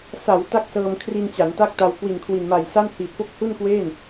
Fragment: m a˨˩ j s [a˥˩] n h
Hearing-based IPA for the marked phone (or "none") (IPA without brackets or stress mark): a˥˩